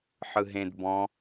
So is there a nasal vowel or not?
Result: yes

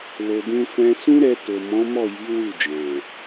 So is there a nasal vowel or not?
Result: yes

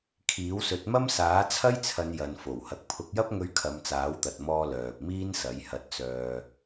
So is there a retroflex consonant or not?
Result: no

